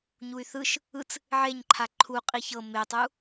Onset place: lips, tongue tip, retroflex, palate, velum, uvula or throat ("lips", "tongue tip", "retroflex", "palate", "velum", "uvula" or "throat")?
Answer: palate